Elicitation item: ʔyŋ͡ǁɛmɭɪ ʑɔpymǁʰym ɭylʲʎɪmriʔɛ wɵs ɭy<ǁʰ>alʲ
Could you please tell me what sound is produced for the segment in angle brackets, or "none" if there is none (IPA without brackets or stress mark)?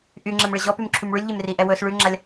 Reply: ŋ͡ǁ